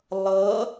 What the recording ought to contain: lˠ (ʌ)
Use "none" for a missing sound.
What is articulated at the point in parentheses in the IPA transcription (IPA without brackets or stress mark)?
ʌ